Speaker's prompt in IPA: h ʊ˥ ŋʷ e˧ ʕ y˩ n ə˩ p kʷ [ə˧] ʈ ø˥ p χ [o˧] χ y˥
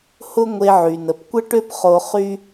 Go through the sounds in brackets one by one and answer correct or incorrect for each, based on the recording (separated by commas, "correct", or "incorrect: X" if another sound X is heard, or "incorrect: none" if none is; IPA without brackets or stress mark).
incorrect: ə˥, correct